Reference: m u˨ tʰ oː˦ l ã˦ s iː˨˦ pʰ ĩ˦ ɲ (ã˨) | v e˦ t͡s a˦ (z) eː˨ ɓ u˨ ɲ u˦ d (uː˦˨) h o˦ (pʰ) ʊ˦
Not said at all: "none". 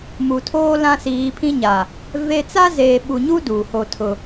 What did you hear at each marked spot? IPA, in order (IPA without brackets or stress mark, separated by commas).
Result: a˨, z, uː˨, tʰ